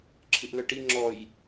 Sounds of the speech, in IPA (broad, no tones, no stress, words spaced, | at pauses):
ǁʰɨʔlœʈi ŋ͡ǁɔj